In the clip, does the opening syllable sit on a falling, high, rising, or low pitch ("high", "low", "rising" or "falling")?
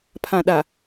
low